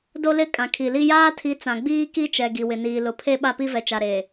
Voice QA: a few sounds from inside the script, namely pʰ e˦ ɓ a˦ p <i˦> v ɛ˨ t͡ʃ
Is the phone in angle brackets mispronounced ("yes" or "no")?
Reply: no